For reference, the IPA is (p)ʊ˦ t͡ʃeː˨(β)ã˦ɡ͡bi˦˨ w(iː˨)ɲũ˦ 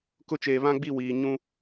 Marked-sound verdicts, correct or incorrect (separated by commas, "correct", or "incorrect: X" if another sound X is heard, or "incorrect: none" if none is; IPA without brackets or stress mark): incorrect: k, correct, correct